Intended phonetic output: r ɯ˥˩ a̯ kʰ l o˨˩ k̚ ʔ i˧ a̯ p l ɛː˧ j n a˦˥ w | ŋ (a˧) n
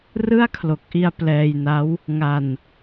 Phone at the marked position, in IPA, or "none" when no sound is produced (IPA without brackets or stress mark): a˧